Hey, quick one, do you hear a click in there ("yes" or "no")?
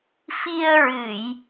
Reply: no